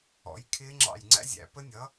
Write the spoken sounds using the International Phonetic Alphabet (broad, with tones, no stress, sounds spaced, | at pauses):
ɔ̰˩˥ j kʰ ɪː˦˥ ŋ͡ǁ ɑ̰˧˩ j ŋ͡ǀ æ̰˦˥ zʲ æ̰˩˧ p ə˦˥ nʲ ʌ˩˥